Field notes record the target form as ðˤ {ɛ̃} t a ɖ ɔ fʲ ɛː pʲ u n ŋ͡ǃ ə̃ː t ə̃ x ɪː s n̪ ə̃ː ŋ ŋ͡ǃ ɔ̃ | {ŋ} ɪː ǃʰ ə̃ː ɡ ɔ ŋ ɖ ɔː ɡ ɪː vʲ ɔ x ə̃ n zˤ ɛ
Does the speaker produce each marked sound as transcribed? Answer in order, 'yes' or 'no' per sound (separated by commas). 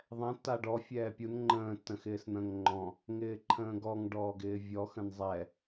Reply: yes, yes